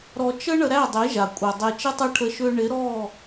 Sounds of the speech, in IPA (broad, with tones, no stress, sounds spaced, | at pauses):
ɾ ɔ˧ t͡ʃ ə˦ ɳ ə˧ ɾ æ˦˨ dˤ e˨˦ ʒ a˨ kʷʼ ɛ˨ dˤ e˧ t͡ʃ ɪ˦ tˤ ɘ˦ ʈʰ ə˧ ʃ ʏː˧ ɳ ɪ˨˦ ɾ ɔː˦˨